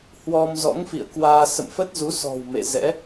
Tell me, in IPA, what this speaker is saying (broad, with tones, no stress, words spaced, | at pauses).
hwɔ˧m zɔ̰˧˥ŋfḭ˧˨ə̯ kwaː˧ sə̰˧˨mfə˦˥t̚zu˨˦ sɔ̤˨˩w mḛ˧˨zɛ̰˧˥